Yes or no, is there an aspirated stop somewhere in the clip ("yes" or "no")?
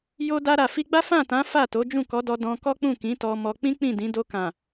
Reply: no